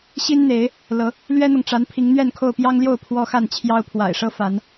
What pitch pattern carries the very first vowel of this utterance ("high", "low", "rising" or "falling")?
high